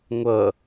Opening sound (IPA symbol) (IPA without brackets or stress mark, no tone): ŋʷ